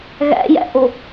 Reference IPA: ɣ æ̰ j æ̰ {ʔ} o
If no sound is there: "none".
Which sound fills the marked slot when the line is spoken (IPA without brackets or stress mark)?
ʔ